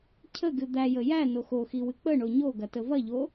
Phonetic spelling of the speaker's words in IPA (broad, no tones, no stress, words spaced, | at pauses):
cʰəɡɨ d̪æjə jæno xoxiwɨ k͡pəɳo ɲoɡɐtə vɐʎo